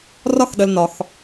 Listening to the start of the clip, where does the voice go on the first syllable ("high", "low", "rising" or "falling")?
high